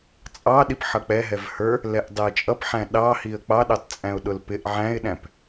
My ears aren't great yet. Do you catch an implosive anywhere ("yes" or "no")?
yes